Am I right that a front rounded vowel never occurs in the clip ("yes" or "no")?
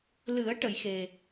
yes